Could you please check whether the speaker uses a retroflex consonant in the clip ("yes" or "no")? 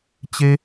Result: no